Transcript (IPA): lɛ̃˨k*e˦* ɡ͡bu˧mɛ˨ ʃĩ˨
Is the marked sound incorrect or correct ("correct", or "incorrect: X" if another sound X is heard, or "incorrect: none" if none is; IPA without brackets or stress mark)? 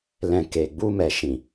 incorrect: e˨